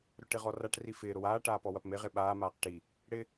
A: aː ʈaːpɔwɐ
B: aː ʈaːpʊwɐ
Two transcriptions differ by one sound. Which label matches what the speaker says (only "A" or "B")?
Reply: A